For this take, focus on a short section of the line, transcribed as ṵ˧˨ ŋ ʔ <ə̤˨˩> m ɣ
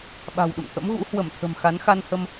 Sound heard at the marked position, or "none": ə̰˧˥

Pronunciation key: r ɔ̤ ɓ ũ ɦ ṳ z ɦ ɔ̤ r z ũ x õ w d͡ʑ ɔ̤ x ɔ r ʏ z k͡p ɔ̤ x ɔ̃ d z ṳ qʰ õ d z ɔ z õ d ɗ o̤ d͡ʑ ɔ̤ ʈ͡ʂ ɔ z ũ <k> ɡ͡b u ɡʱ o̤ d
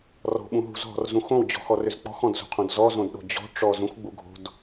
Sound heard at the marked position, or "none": x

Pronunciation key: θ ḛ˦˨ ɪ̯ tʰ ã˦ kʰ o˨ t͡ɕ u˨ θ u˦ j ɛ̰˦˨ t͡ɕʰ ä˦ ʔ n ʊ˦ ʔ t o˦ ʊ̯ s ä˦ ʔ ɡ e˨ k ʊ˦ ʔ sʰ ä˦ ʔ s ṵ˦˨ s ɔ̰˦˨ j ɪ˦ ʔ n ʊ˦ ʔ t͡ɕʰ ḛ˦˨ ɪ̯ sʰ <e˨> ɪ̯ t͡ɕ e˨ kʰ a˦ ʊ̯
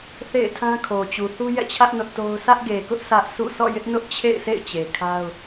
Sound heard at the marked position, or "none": ḛ˦˨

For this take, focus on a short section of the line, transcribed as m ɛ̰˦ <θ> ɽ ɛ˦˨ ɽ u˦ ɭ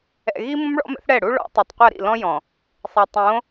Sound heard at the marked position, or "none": θ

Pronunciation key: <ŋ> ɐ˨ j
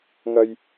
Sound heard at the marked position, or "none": ŋ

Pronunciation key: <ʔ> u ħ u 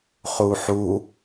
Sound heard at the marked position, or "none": χ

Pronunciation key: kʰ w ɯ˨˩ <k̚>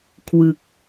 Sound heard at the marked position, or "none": k̚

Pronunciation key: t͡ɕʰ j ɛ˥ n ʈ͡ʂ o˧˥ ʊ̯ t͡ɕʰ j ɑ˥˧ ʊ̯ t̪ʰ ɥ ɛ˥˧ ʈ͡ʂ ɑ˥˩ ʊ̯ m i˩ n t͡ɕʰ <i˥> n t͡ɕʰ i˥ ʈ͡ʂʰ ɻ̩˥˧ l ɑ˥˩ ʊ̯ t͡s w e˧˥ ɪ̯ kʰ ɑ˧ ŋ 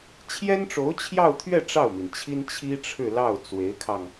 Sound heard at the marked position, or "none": i˥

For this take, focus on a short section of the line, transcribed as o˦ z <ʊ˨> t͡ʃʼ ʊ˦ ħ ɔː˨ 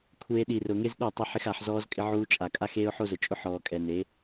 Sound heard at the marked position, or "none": ʊ˨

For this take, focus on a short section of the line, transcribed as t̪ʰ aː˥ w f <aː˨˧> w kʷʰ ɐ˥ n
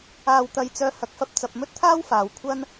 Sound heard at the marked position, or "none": aː˨˧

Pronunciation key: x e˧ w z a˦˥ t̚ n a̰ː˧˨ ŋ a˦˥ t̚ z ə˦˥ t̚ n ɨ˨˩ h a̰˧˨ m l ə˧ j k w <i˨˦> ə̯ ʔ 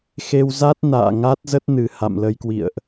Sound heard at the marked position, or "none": ḭ˧˨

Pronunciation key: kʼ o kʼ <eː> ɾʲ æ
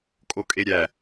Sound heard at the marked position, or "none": e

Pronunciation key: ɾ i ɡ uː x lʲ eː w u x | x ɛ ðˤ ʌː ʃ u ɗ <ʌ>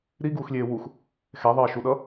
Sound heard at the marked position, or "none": ʌ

